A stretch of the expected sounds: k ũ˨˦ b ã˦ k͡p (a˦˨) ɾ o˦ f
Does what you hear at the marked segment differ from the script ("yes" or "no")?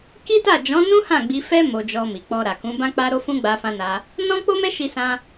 yes